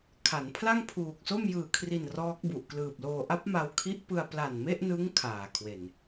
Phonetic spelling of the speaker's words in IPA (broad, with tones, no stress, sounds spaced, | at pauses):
kʰ a˩˦ n pʰ l a˥˩ ŋ pʰ uː˨˩ k̚ s o˥˩ m j ɯː˨˩ kʰ r i˨˩ n r ɔː˦˥ k̚ b u˨˩ ʔ k l ɯː˨˩ p̚ l oː˧ ʔ a˦˥ p̚ m a˧ w kʰ i˦˥ ʔ p ɯ˧ a̯ p l a˨˩ n m e˥˩ ʔ n ɯ˦˥ ŋ kʰ aː˨˩ kʰ w e˨˩ n